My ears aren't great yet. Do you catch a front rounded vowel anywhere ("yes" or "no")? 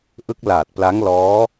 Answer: no